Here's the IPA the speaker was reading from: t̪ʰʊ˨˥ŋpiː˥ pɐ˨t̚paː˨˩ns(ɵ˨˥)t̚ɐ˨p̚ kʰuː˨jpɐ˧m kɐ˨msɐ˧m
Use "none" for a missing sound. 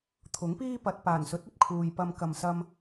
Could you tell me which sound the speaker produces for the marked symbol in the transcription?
ɵ˨˥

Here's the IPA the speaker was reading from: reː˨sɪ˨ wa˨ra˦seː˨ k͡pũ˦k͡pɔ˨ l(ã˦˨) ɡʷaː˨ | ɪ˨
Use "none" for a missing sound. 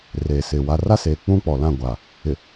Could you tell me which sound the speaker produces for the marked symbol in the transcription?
ã˦˨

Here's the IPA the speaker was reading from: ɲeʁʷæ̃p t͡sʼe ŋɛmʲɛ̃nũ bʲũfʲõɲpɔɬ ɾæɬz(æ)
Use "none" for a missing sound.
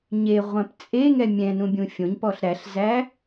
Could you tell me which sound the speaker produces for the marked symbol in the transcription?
æ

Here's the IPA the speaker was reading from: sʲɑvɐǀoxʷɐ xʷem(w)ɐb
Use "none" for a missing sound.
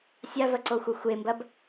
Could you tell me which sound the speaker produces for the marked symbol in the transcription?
b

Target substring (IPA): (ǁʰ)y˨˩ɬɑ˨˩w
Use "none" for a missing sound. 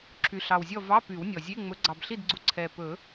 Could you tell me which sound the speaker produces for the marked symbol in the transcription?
ǁʰ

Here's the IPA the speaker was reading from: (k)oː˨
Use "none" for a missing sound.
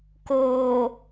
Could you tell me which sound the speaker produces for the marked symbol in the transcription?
k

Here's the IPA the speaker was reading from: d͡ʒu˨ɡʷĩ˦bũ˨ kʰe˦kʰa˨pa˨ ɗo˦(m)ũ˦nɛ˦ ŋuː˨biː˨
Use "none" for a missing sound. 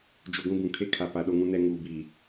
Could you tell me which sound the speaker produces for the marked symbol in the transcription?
ŋ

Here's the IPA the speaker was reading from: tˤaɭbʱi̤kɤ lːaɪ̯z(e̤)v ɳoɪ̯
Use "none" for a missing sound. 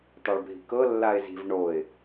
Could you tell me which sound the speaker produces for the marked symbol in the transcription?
i̤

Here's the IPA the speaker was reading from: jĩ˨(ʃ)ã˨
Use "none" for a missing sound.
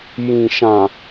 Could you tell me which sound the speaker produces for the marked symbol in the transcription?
ʃ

